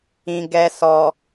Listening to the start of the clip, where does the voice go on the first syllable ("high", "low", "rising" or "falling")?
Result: low